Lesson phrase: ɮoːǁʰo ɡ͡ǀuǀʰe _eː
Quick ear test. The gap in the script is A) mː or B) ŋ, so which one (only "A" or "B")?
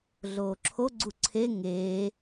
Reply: B